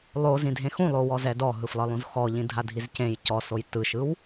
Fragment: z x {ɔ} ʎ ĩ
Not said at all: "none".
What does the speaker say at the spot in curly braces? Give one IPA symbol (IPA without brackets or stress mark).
ɔ